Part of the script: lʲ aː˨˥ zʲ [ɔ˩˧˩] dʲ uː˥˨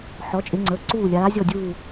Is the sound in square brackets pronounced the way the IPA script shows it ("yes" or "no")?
no